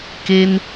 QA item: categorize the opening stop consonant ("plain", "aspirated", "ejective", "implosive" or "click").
plain